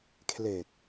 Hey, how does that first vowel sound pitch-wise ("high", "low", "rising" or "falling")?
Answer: low